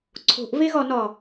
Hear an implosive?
no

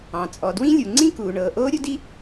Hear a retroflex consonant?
yes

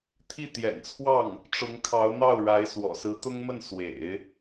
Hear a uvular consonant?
no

